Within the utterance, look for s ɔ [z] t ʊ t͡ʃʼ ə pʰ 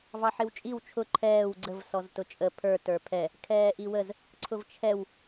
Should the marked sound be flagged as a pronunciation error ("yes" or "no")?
no